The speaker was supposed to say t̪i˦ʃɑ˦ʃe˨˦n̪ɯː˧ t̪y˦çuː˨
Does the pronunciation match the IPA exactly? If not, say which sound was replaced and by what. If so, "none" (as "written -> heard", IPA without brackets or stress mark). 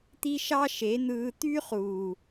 ç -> χ